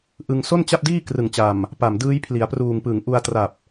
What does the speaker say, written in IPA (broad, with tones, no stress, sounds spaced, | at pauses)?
ʔ ɯ˧ ŋ s o˥˩ n t͡ɕ a˥˩ p̚ d iː˥˩ k r ɯ˨˩ ŋ t͡ɕ a˨˩ m | p a˨˩ m d ɯː˦˥ j pʰ l i˩˦ a̯ p r uː˨˩ ŋ p ɯ˩˦ ŋ ʔ u˧ a̯ t r a˨˩ p̚